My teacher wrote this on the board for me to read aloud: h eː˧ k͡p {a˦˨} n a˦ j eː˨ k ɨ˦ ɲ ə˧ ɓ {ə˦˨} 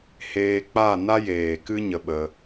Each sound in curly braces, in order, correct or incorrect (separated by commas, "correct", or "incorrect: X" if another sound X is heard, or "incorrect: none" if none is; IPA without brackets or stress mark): correct, incorrect: ə˧